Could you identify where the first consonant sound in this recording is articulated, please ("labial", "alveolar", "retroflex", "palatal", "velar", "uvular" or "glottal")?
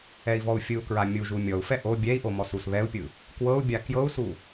labial